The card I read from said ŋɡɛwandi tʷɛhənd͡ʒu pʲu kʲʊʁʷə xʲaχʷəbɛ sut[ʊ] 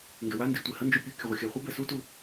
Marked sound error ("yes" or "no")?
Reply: yes